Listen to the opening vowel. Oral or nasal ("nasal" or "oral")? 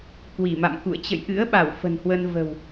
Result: oral